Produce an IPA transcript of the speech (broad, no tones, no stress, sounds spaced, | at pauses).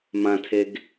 m ã tʰ e ɡ